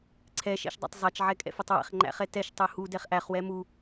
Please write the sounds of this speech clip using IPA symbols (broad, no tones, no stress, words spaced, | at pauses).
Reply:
ǀʰɛʃɛ̰ʃdˤæ̰tˤ zˤɛt͡ʃʕɛkʼɛ̰fɛtˤ wɛ̰χŋ͡ǃæ̰χɛ tɛʃtˤu hudɛχ ʔæχwɛ mu